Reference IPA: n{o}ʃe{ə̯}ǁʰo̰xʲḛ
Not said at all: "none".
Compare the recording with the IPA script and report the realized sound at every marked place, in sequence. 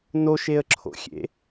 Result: o, ə̯

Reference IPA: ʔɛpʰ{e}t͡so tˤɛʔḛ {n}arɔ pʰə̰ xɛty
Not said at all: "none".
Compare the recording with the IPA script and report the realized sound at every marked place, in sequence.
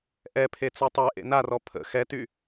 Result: e, n

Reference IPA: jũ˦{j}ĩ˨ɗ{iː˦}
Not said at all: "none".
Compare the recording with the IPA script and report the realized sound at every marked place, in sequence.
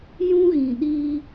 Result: ɣ, iː˦

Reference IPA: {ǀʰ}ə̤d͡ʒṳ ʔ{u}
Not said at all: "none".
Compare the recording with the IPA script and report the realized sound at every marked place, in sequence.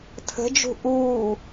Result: tʰ, uː

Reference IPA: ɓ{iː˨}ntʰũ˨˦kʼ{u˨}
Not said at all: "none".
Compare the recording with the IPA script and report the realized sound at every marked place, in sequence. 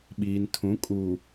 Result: iː˨, uː˨

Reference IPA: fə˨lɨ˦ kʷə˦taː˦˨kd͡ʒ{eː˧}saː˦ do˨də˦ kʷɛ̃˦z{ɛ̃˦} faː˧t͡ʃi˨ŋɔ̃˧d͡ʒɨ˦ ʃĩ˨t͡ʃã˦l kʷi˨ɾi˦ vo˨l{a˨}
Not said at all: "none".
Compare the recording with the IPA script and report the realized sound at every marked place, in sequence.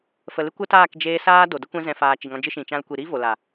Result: eː˧, ɛ̃˧, a˨

